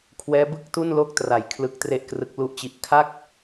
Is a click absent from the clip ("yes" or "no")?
yes